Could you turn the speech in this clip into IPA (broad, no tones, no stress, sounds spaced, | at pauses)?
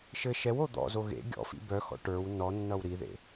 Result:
ʃ ɘ ʃ ɛ w o d̪ ɔ̰ z o ɣ ḛ ɡʲ ɔ̰ f ḭ b œ x ɔ̰ ʈ ə˞ w n ɔ nː ʌ w ɾ i ð ḛ